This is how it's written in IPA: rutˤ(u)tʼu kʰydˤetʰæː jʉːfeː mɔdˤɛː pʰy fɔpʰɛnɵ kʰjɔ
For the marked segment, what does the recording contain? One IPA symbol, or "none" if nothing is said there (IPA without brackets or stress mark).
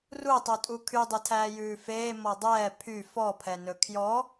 u